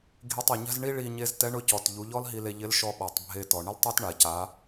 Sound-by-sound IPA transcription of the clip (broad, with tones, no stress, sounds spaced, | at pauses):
ɡʱ i˧ tˤ e˩ ɲ a̤˥ z ɳ i˥ ɭ i˧ ɲ e˧˥ z t ɛ˧˥ ɳ ʊ˧˥ c ɔ˩ t ʎ u˩˧ ʎ ɔ˥ l ɦ i˧ l e˧ ʎ ɪ˧˥ l ʃ ɔ˧ ɓ a˩ tˤ bʱ e˧ t ɔ˩ ɳ ɪ˥ l tˤ ɛ˥ t ɳ a˩ c a˩˧